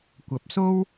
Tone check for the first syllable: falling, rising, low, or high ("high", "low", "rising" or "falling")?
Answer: rising